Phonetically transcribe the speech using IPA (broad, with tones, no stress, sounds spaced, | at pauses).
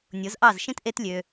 nʲ o˨˦ z ʔ ɑ˦˨ z ʃ ĩ˦ t ʔ e˦ t lʲ ø˧